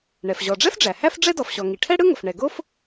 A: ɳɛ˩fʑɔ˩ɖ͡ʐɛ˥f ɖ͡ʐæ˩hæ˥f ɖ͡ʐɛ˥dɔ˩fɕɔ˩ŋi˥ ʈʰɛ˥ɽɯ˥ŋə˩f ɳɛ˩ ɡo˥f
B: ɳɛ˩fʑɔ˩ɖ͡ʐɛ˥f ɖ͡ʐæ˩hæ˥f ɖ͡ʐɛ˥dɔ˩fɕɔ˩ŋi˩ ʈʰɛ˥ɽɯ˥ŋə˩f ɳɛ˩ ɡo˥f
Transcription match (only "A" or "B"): B